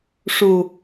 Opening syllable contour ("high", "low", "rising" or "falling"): low